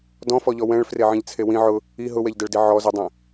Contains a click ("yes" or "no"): no